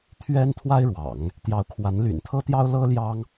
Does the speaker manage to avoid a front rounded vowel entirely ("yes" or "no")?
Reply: no